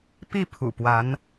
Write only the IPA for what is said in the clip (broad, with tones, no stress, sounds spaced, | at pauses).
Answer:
p i˥˩ pʰ ṵ˨˩ p w a˧˥ n